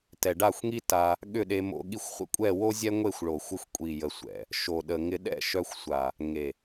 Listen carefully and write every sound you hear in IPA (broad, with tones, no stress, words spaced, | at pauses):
tɛ˨ɖa˦˨xʷŋi˦ ta˧ | ɠʏ˦˨ɗe˧mo̰˧ ɠi˧xʷχʷə̰˦kʷʼɛ˦˨wo˦ zʲɛ˦ŋʷe˦˨xʷɭo˨xʷɪ˧xʷ kʷʼi˨jə˨sʷɛ̰˨ | ʃo˨ɗə˨ŋɪ˧ ɗɛ̰˦˨ʃœ˧xʷsʷa˨ | ŋe˨